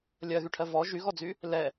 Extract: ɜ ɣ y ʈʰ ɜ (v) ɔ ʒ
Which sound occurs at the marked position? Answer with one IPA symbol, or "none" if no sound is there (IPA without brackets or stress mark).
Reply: v